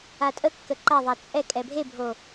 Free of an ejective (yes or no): no